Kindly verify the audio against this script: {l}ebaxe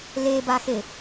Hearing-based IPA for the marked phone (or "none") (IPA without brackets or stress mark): l